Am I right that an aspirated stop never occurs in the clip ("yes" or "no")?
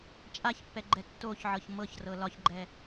yes